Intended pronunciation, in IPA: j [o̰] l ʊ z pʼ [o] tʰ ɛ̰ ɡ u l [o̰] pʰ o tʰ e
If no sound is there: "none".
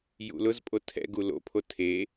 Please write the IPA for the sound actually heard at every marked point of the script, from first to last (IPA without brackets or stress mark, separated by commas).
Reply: ṵ, o, o̰